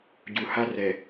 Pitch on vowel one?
low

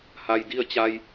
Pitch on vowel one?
low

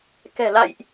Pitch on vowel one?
low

